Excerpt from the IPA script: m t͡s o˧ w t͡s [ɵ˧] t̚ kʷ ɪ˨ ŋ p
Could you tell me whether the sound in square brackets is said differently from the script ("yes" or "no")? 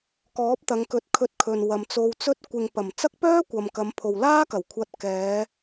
no